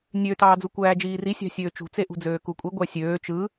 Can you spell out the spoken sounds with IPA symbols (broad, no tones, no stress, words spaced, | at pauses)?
nʲøtɑː d͡zukʷæːd͡ʒiːri sʲɑ̤sʲøːt͡ʃṳt͡se ʔṳd͡zøːkukʷʼi ɡʷæsʲøː t͡ʃɯ